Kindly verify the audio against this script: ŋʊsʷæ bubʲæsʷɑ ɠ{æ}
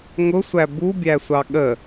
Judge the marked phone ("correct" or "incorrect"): incorrect